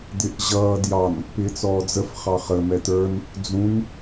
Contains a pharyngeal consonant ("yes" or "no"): no